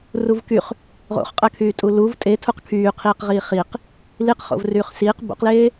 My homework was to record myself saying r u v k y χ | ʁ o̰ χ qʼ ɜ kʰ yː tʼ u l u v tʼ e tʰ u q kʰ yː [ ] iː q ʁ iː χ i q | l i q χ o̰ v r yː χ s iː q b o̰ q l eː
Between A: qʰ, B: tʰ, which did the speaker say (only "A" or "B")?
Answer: A